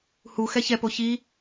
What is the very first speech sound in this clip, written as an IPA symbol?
h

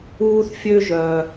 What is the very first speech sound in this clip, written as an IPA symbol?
uː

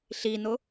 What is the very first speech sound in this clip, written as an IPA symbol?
ɬ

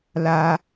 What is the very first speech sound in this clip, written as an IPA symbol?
l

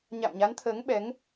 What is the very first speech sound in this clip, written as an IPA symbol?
ɲ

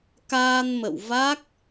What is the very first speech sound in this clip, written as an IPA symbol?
k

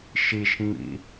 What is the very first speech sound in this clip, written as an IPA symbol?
ʃ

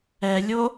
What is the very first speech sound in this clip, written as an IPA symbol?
ɛ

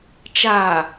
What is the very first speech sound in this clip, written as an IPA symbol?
t͡ʃ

